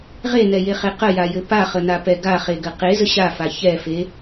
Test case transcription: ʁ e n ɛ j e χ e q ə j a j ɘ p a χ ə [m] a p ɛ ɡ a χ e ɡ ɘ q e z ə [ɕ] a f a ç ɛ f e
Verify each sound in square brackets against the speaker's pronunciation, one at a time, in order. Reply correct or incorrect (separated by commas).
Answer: incorrect, correct